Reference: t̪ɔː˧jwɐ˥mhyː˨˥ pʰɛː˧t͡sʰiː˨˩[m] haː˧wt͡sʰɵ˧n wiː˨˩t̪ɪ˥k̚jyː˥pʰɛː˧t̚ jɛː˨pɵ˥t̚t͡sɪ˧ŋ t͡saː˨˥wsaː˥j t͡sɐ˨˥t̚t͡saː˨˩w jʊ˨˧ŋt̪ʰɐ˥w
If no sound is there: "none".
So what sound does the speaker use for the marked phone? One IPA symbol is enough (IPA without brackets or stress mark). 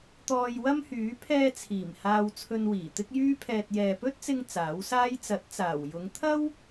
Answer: m